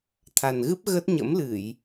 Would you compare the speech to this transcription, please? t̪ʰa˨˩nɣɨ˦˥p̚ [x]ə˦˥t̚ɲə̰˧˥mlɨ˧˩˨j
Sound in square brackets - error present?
yes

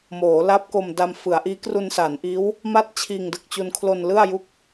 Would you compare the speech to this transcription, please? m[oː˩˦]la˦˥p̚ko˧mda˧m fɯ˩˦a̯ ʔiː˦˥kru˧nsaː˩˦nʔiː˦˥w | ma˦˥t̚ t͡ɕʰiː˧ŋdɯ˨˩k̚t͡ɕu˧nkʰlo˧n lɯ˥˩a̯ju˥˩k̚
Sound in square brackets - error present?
no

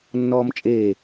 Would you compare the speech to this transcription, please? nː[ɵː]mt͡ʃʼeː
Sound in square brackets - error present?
yes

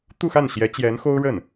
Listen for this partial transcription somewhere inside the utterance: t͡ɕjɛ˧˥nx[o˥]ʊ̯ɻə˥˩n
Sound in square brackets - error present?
no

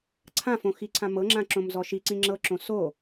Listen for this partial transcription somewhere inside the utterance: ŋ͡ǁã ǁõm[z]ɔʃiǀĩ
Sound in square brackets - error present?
no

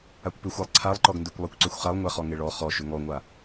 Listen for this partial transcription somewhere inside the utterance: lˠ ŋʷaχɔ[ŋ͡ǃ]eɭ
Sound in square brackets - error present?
yes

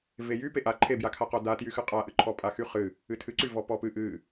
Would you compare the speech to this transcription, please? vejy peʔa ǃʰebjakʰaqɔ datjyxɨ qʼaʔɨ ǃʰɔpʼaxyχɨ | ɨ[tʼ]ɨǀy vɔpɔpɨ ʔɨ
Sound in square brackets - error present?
yes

